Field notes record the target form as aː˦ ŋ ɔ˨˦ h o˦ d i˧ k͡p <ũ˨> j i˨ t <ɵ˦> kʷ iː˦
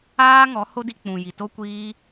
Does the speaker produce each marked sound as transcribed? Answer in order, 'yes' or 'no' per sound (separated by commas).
yes, no